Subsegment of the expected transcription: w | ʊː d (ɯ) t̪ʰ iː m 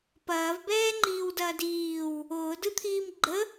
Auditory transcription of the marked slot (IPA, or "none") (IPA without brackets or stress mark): ɯ